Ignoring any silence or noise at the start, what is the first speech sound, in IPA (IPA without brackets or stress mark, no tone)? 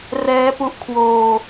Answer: r